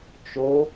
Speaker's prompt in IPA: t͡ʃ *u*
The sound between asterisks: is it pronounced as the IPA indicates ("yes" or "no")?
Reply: no